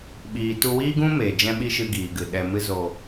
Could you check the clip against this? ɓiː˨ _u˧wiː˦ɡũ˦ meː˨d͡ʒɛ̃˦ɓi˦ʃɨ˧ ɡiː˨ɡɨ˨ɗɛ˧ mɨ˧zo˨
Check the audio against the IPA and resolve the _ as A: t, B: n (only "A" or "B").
A